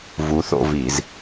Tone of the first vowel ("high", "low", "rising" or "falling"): rising